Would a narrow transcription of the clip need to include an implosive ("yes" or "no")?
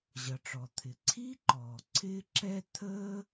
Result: no